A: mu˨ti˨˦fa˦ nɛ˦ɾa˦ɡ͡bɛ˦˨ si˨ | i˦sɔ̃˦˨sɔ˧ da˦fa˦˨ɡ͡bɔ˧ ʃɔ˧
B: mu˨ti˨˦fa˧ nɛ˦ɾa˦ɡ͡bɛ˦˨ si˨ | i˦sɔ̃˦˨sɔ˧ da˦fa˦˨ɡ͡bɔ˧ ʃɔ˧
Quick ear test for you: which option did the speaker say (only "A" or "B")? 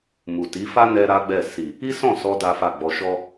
A